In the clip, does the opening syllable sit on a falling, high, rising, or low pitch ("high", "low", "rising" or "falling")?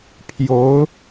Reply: rising